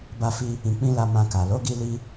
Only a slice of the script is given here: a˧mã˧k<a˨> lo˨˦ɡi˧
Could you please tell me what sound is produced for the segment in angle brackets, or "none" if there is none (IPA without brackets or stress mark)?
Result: a˨